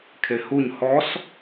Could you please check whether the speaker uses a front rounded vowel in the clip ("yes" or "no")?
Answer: no